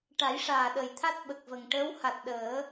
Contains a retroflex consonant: yes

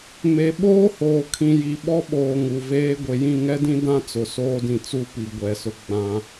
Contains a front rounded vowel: no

